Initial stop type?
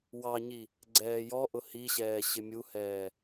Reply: click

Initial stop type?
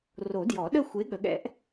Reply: plain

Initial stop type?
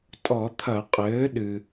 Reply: ejective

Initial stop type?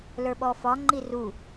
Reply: implosive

